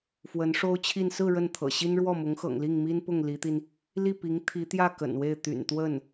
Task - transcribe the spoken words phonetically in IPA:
f w ə˧˥ n ʂ o˥ ʊ̯ t͡ɕʰ i˥˧ n s ɹ̩˥˧ ɻ ə˥˩ n t̪ʰ ɤ̰˨˩ ɕ i˥ n ɻ w ɔ˥˩ m ʊ˧˥ ŋ x ɤ̰˨˩ ŋ l i˥˩ ŋ m i˥ n p ʊ˥˩ ŋ l i˧˥ t̪ i˧ n | l i˥˩ p i˧˥ ŋ t̪ʰ i˧˥ t̪ j ä˥˩ k ə̰˨˩ n w e˥˩ ɪ̯ t̪ y̰˨˩ n t̪ w ə˥˩ n

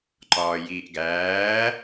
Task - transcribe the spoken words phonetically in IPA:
ǃ ɒː j iː ʔ ɡ æː

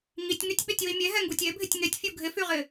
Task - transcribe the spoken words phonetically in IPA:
ŋ i tʲ ŋ y tʲ ɓ ɪ tʲ w i mʲ e ɦ ɛ ŋ ɡ u tʲ e bʱ ɪ tʲ ŋ e tʲ fʲ u ɡʱ ɪ f y ʁ ɪ

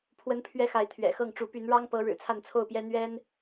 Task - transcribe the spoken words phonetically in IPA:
pʰ w ə˦ n pʰ ɥ ɛ˦ x a˨˦ ɪ̯ t̪ʰ ɥ ɛ̰˨˩ x ɤ˥˨ ŋ ʈ͡ʂ u˨˦ p y˨˦ n ɻ ɑ˦ ŋ p ɤ˨˦ ɻ ɻ̩˨˩ t͡sʰ a˥˨ n t͡sʰ o˥˨ ʊ̯ p j ɛ˦ n̪ ɥ ɛ˦ n

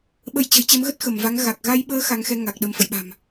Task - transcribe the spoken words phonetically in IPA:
ɓ ə˨˦ j t͡ɕ ə̤˨˩ j t͡ɕ ɛ˨˦ m ɣ ə˦˥ t̚ x ə˧˩ m v a˨˦ ŋ ɣ a˨˩ k̚ ɣ a˧ j ɓ əː˨˦ x a˨˦ ŋ x ɛ˧ ŋ a˨˩ k̚ ɗ ə˧ m f ə̰˧˨ j ɓ a̤˨˩ m

